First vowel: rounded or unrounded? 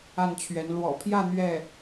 unrounded